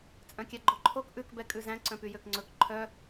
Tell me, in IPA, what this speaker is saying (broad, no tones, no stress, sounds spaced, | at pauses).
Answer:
t͡sʼ œ̃ kʲ æ ɡ͡ǃ o ǃʰ o k ʔ ʉ k b ɛ kʼ ʉ z æ̃ ǀ œ̃ p y j ø k ŋ͡ǀ ɵ k ǃʰ œ